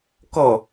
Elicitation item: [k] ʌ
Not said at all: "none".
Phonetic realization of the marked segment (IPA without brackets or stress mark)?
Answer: k